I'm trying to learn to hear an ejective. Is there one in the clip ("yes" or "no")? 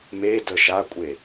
yes